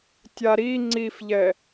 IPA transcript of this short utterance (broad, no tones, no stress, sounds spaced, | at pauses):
tʲ a ɾ i ŋ͡ǀ i f ʎ ɛ